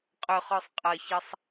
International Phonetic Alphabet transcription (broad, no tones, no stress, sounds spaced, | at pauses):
qʼ ɵ χ ɔ sˤ qʼ ʌ ç ʌ sˤ